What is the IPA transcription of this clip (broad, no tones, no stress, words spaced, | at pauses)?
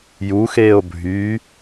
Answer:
juxeːo̯ bʱy